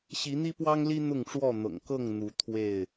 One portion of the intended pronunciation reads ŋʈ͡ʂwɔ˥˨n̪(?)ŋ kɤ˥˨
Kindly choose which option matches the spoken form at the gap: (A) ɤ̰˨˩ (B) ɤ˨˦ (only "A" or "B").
A